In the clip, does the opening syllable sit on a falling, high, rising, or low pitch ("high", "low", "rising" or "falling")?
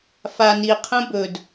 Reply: low